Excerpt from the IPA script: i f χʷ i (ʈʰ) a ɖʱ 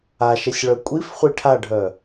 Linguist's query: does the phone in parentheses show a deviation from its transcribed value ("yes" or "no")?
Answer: no